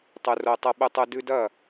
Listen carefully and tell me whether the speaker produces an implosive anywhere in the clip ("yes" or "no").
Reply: yes